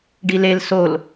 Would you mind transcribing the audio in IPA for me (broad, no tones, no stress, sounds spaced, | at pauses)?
ɖ i l e l s o l